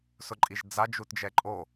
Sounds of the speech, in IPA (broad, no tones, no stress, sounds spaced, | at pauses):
s ʊ ǃʼ i ʒ d͡z a d͡ʒ u t d͡ʒ ɛ ǃʼ o